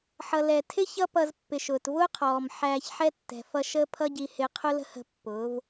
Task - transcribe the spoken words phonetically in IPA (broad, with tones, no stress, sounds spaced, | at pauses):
ħ ʌ˨ l ɛ˨ tʰ ɪ˦ ç ʌ˦ p ʌ˧ z pː ɪ˨ ʃ ʊː˨ t v ʊː˦ qʰ ɔː˨ m ħ æː˧ ç ħ ɛ˦ tː ɛ̤˨ f ʌ˧ ʃ əː˦ pʰ ʌ˦ ɟ i˧ h ɪ˧ qʰ ʊ˦ l ə̤˦ h ə̤˧ pː ʊː˨˦ v